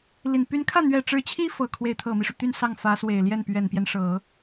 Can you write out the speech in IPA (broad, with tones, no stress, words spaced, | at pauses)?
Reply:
li˨˩n py˧˥nkʰä˥˩n̪ɥɛ˨˩ ʈ͡ʂɻ̩˧˥t͡ɕʰi˥ fɤ˨˩ kʰwe˧˥ɪ̯t̪ʰɤ˨˩mi˦ʂu˩ t̪y˥˧n sɑ˥˩ŋfä˧˥swe˨˩ɪ̯ljɛ˥˩n pɥɛ˨˩npjɛ˦nʂɤ˨˩˦